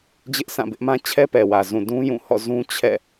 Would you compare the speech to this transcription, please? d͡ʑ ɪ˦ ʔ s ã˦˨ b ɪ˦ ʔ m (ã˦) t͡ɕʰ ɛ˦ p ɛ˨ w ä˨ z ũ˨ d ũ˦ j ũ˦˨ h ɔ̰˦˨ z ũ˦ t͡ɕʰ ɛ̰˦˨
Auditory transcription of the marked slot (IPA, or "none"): ã˦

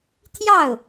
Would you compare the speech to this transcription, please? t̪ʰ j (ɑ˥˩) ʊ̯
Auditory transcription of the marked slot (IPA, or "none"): ɑ˥˩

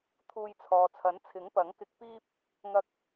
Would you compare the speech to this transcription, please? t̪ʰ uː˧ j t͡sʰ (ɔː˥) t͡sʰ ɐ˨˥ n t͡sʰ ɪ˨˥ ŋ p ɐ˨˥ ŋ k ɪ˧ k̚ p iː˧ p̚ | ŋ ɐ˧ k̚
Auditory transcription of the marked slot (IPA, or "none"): ɔː˨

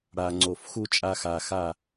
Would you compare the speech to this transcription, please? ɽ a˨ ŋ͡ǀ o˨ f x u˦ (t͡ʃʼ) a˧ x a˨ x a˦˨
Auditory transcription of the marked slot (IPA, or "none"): t͡ʃʼ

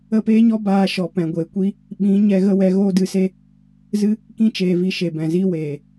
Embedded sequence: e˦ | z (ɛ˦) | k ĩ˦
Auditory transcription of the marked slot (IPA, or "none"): ɨ˦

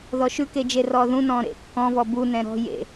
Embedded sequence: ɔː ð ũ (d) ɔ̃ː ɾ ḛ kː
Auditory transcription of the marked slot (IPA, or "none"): n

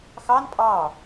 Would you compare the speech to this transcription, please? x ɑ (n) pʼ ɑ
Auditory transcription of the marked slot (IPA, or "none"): n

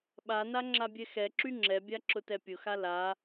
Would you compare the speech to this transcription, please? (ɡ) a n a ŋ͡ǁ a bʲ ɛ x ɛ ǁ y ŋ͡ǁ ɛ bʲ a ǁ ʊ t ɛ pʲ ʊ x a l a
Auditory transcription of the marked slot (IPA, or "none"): ɓ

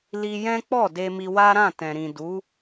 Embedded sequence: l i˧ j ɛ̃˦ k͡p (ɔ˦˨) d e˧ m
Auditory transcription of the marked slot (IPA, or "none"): ɔ˦˨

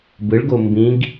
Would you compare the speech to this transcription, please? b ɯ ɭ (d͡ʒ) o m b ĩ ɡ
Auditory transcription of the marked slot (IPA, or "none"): ɡ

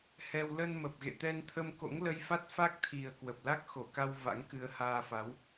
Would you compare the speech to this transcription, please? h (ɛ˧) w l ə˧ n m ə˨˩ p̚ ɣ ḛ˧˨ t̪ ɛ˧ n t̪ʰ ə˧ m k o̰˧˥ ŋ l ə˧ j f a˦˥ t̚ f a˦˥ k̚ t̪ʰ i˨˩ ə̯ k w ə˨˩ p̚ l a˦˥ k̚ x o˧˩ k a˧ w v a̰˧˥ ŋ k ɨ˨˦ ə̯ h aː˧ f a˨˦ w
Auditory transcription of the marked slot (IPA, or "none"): ɛ˧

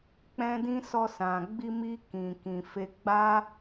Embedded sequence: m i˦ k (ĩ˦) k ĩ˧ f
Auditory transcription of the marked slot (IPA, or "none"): ĩ˧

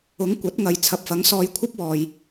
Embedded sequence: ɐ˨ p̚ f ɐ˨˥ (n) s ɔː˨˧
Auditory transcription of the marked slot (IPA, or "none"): ŋ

